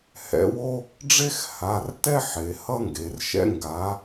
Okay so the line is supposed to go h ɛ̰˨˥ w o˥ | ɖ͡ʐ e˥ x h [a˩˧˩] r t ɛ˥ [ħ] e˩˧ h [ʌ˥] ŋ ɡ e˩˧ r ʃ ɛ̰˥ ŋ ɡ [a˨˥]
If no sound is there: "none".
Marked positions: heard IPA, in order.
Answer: a˩˧˩, ħ, ʌ˥, a˨˥

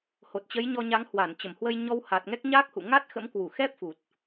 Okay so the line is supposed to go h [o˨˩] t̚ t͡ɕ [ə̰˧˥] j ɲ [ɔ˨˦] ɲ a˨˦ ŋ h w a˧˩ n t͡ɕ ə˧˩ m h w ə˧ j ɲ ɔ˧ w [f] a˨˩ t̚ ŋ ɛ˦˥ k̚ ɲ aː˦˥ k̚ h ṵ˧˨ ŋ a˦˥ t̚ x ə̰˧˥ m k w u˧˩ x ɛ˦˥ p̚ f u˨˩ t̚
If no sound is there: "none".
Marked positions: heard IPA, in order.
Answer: o˨˩, ə˨˦, ɔ˧, h

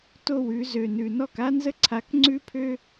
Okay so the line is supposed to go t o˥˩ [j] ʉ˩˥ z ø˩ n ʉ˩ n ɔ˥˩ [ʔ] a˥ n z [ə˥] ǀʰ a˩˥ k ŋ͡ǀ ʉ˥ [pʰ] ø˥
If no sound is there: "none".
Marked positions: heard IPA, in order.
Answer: w, k, ə˥, pʰ

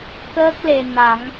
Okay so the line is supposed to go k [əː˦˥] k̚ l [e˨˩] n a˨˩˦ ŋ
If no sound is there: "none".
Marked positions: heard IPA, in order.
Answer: əː˦˥, e˨˩

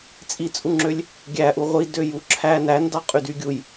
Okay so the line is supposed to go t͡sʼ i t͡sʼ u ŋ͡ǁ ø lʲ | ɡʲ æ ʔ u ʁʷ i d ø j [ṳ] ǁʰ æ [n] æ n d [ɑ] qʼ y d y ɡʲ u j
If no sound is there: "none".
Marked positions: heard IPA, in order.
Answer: u, n, ɑ

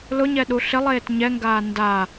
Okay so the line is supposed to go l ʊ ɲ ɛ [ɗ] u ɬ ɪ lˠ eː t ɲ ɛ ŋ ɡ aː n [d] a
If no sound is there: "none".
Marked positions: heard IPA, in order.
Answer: ɗ, d

